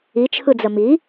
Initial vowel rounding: unrounded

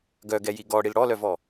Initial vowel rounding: rounded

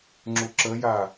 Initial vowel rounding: rounded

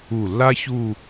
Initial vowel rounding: rounded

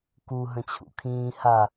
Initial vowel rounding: rounded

